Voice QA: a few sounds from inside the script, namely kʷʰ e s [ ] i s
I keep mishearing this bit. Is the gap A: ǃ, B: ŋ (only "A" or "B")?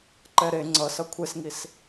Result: B